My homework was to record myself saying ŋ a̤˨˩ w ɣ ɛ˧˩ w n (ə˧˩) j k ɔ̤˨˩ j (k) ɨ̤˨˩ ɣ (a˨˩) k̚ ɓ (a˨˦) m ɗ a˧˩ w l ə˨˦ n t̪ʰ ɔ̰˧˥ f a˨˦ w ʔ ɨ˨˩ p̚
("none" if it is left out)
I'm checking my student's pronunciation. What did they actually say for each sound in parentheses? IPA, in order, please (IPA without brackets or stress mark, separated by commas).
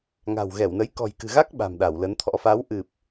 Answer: ə˨˦, k, a˦˥, a̤˨˩